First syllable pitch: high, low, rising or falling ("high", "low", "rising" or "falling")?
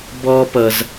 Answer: high